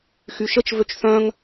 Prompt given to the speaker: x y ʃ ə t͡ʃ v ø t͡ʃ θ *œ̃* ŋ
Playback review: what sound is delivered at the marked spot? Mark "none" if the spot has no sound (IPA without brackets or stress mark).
œ̃